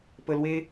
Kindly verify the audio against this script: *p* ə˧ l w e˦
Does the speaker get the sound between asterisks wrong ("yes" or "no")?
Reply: no